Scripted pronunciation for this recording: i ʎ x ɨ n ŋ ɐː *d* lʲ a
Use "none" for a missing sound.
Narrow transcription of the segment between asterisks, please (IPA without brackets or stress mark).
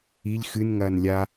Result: n